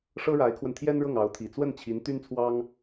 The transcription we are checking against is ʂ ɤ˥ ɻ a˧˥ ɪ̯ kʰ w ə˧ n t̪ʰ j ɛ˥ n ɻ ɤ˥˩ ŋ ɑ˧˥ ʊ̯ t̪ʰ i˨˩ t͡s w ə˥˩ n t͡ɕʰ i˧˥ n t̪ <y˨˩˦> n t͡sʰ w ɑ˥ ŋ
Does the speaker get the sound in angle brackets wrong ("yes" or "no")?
yes